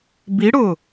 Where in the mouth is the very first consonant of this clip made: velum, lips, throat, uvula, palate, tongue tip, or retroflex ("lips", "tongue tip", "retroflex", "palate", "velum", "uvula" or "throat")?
lips